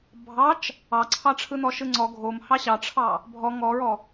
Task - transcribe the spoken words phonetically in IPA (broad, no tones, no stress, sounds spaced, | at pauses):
bʱ ɑ t͡ʃ | ɑ ǀʰ ɑ ʈ͡ʂʰ ɯ n ɔ ʃ ɯ ŋ͡ǀ ɔ ɡʱ o m h ɑ ɕ ɑ ʈ͡ʂʰ ɑ | bʱ ɔ ŋ ɔ ɹ ɔ